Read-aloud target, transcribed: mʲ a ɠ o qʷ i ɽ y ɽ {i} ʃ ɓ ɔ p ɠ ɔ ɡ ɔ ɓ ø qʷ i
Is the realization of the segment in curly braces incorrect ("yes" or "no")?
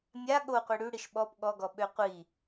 no